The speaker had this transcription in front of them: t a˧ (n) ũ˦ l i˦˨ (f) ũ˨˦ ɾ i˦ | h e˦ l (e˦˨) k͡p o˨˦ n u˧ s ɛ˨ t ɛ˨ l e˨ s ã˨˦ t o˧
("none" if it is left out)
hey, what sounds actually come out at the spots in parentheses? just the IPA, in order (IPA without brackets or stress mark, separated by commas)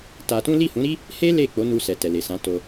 t, h, e˦˨